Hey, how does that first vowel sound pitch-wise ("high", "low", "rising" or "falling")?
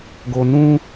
high